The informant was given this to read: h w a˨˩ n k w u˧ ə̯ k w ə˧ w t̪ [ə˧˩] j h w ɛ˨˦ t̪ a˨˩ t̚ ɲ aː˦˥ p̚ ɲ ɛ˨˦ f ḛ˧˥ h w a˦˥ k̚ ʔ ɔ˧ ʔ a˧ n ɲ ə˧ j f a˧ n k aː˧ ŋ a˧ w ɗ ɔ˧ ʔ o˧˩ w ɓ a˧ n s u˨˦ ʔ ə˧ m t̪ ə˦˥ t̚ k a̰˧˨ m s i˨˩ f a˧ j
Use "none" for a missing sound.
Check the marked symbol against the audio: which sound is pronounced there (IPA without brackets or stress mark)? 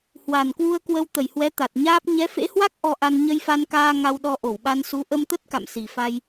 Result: ə˧˩